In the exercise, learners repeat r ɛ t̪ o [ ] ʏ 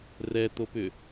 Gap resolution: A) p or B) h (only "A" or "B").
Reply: A